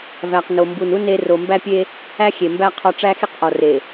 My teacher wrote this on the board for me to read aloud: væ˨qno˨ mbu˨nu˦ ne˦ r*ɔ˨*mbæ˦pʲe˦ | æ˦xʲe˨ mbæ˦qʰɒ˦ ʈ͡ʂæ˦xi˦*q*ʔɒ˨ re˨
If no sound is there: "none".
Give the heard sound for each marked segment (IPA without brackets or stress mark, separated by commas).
o˨, q